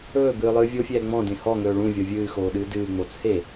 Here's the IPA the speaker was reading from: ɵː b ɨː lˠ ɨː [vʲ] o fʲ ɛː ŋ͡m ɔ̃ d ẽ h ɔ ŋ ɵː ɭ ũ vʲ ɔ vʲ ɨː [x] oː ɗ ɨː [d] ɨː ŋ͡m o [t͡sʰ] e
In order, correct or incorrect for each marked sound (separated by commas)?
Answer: correct, correct, correct, correct